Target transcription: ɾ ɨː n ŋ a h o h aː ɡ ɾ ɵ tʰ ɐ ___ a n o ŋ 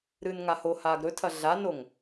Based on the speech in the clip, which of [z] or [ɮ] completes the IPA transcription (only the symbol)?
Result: ɮ